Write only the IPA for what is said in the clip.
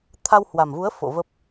t̪ʰa˧whwa˨˩mvu˨˦ə̯ fo̰˧˨və˦˥p̚

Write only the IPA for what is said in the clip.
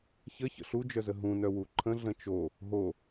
çə çə̰ɬud͡ʒœzə ɦũnœ wuǃʰə̃ ɮə̃t͡ʃo | ɦo

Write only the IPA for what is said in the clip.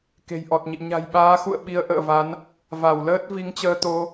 ke̤˨˩jʔɔ˨˩t̚ɲḭ˧˨ ɲa̤˨˩jɓaː˨˦xṵ˧˨ə̯ ɓi˧ə̯ʔə̰ː˧˨va˨˦n | va˧˩wləː˦˥t̚ vi˨˦ŋt͡ɕəː˧ t̪o˧

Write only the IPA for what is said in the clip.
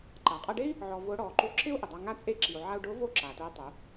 ǃa˩qʼa˧ɖe˥i̯ | ʕɔ˧ vʊː˧˥ɽɔː˩˧ ǃu˧ǁɪ˥u̯ ʔɪ˩dˤa˧ ŋa˥t͡sʼe˥ ǁi˩u̯ ʕa˧u̯ɖʊː˧˥ vo˥ǁa˩tʊː˧˥ tˤu˩˧

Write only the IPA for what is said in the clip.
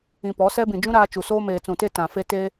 ĩ˨pɔ˨˦sɛ˦bĩ˨ d͡ʒũ˦ ɾaː˦t͡ʃu˨ soː˦meː˨t͡sũ˨te˦ tã˨fe˦ te˦

